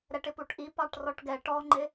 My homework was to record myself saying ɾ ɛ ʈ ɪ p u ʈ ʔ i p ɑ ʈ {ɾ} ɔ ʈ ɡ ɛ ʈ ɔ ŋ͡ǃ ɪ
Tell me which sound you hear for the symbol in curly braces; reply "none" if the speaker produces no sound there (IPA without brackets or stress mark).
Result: r